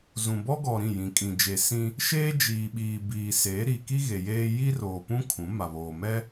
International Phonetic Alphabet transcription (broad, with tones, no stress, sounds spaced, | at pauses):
z ũ˨ b ɔ˦ ɡ ɔ˨ ɾ ĩ˦˨ j ĩ˨ kʼ ĩ˨ d͡ʒ e˨ s ĩ˦ | ʃ eː˦ d͡ʒ iː˨ ɓ iː˨ b iː˨ s eː˨˦ ɾ i˨ k i˦ ɣ e˨ j eː˦ j i˦ r oː˨ p ũ˦ kʰ ũ˨˦ m a˨ β oː˨ m ɛ˦